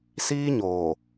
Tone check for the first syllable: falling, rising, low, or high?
high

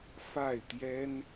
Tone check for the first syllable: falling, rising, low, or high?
falling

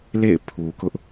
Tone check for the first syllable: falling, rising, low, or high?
falling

